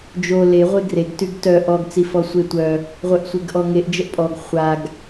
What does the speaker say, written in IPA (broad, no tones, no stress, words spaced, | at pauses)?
d͡ʒo le ʁʷeɡreɡ tyɡtœ ʔɔɡ t͡sifɔsʷetʷœ | ʁʷœʔsʷeɡʔɔŋeʔ d͡ʒəʔpʼɔɡ χʷaɡ